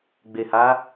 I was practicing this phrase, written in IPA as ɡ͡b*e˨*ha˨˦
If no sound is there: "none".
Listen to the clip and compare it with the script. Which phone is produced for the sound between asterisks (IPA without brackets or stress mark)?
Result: e˨